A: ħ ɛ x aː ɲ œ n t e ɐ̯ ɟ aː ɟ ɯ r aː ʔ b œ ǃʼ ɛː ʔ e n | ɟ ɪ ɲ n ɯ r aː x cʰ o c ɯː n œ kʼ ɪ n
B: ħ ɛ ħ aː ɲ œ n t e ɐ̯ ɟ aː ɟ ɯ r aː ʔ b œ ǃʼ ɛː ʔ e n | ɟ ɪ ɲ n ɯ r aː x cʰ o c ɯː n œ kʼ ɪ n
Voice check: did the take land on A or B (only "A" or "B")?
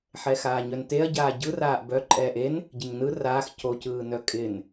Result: A